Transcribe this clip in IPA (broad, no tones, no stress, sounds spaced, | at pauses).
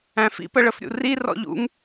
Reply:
æ̃ f ḭ p ə ɭ ə f ɾʲ ṵ r i r ɔ̰ ʎ ṵ ŋ